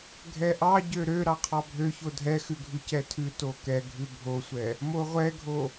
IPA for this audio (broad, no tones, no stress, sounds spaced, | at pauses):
ɡʱ ɛ ʔ ɑ ɟ ø ɾ ø ɾ ɑ qʰ ɑ bʱ ø ç o dʱ ɛ x ʉ ɡʱ ʉ c ɛ tʰ ʉ t o k ɛ ɡʱ ʉ bʱ o sʷ ɛ | m o ʁʷ ɛ ɡʱ o